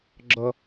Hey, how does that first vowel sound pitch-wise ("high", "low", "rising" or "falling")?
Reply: high